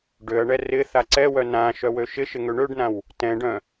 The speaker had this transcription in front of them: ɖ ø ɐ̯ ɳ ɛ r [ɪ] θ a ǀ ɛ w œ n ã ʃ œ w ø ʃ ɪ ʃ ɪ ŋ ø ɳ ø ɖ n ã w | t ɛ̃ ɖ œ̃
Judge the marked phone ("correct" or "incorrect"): correct